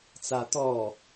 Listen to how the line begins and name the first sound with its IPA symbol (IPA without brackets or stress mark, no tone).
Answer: t͡s